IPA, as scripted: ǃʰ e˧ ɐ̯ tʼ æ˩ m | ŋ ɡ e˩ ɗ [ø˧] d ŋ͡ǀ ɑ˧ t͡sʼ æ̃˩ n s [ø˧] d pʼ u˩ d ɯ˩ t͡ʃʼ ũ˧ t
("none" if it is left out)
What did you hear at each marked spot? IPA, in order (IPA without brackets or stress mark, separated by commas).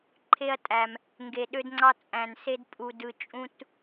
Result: ø˧, e˧